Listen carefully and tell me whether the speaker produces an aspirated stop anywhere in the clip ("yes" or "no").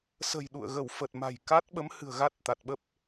no